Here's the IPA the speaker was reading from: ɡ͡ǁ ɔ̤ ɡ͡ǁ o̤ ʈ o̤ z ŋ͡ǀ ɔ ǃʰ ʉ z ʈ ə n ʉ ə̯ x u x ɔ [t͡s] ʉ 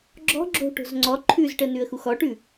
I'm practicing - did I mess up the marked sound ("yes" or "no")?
yes